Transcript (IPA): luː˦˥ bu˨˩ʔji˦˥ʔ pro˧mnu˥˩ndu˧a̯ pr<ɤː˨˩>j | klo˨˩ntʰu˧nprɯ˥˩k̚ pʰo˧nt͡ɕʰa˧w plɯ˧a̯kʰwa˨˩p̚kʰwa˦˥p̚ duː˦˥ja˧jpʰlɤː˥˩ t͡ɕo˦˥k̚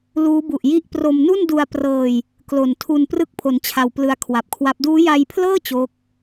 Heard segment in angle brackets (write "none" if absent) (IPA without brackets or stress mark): ɤː˧